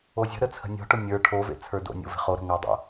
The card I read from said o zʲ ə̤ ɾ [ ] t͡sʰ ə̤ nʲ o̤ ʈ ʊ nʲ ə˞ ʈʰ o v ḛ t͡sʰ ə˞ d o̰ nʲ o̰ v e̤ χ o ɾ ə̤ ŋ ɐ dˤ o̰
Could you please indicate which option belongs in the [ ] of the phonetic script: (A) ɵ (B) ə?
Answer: B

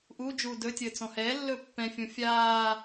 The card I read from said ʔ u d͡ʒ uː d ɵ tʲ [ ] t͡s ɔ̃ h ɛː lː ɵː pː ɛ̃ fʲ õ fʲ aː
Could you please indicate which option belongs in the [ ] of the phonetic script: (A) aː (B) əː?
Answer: B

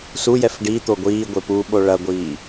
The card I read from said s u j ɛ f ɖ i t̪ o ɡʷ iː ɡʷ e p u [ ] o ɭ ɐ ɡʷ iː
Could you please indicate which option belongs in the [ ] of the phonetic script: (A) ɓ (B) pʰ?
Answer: A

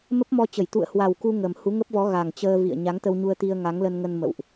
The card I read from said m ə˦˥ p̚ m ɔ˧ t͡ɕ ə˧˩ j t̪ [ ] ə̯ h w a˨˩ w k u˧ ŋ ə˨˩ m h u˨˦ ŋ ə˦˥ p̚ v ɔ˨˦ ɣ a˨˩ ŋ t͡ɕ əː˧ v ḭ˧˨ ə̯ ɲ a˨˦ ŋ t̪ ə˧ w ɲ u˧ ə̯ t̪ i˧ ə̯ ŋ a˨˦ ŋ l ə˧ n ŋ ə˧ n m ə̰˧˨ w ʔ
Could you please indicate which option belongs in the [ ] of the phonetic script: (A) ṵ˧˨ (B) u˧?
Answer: A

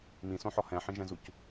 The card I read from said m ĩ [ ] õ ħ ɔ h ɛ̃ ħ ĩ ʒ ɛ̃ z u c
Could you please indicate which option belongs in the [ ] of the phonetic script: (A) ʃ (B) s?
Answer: B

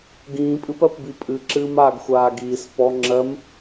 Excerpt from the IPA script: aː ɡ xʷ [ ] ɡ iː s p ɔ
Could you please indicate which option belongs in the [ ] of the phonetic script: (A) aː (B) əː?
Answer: A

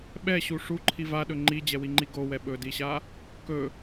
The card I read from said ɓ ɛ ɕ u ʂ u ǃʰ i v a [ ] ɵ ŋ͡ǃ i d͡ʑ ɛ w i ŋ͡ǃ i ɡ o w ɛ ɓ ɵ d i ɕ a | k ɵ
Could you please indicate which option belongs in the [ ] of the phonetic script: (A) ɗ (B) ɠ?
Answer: A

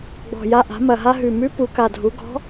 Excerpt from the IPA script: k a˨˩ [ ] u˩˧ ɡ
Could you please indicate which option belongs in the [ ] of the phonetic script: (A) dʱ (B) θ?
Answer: A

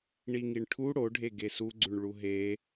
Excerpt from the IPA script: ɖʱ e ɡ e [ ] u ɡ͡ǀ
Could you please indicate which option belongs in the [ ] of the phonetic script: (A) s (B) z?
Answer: A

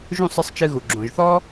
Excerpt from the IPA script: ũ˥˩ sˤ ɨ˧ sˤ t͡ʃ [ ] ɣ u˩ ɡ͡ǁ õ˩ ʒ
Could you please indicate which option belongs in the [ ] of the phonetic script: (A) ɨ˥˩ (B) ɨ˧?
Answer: B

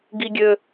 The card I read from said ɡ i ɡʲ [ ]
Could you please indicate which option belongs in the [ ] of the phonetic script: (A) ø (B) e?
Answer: A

